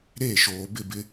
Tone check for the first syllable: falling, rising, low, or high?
falling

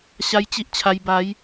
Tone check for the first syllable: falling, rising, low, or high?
high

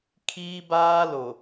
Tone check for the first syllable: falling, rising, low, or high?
high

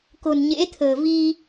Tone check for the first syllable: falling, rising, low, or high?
low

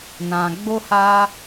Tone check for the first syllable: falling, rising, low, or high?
low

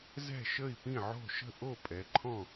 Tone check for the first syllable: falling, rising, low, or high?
falling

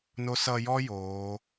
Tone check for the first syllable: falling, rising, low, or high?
rising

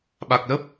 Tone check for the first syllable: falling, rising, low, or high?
low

